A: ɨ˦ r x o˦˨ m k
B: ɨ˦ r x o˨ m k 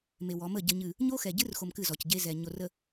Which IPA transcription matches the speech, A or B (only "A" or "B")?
B